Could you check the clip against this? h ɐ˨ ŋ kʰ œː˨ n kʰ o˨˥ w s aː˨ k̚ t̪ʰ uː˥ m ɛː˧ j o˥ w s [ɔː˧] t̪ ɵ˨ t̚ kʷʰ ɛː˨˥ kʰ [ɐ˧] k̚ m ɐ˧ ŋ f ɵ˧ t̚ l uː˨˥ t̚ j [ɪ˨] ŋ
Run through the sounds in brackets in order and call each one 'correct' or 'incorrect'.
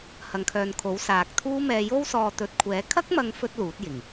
correct, incorrect, incorrect

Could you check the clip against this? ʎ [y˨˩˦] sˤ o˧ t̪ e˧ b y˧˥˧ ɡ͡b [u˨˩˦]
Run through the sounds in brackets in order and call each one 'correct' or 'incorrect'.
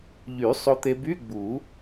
correct, correct

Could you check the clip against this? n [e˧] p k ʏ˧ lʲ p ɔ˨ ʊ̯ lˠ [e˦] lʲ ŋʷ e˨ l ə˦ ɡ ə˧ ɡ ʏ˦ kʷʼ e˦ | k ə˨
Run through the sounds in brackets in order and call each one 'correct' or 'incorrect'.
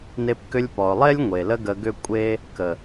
correct, correct

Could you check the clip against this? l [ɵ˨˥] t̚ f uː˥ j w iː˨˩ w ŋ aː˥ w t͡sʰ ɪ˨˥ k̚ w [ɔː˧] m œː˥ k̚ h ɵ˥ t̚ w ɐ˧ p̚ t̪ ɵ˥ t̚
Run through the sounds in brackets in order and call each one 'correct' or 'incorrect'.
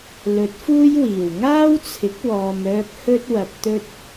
correct, correct

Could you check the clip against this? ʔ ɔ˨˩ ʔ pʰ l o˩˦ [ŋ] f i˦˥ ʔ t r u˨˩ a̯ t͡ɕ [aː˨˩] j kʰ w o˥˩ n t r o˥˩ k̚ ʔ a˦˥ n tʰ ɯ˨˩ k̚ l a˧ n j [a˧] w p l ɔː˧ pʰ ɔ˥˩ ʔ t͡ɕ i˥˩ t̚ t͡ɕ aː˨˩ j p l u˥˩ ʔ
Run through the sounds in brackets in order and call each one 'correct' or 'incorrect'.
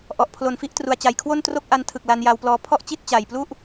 incorrect, incorrect, correct

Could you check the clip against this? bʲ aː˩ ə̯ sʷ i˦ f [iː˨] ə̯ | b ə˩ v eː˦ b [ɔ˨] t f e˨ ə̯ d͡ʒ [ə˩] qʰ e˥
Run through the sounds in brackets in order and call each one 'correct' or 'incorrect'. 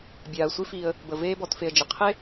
correct, correct, correct

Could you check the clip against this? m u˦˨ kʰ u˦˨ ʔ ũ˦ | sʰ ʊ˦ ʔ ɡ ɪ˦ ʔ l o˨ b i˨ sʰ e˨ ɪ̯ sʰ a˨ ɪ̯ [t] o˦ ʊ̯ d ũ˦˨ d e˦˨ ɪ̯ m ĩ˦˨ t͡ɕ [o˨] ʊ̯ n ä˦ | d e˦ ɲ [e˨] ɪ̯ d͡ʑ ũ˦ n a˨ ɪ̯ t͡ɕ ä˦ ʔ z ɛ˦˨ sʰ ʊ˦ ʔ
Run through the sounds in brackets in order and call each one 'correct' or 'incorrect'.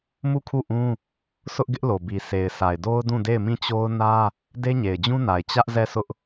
incorrect, incorrect, correct

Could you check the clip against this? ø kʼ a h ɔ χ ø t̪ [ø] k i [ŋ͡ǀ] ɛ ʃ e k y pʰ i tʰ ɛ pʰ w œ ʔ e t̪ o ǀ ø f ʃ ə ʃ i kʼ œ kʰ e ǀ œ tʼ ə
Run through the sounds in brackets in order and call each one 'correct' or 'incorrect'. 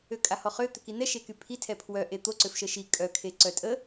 correct, incorrect

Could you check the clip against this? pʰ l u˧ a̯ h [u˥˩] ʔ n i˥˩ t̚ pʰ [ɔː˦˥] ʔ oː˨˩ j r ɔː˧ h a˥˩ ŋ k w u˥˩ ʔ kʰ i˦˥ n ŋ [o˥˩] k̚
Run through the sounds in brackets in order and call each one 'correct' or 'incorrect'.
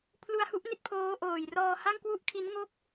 incorrect, incorrect, correct

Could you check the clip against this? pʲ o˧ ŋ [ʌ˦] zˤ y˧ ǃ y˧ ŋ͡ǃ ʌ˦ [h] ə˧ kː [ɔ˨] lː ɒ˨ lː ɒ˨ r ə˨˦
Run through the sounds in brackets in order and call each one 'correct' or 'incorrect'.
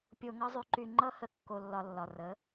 correct, correct, incorrect

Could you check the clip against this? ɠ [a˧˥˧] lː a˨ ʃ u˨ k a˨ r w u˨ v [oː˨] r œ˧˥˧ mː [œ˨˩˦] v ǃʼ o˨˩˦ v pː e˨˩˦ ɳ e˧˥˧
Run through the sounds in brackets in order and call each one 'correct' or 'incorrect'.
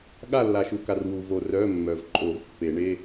incorrect, incorrect, incorrect

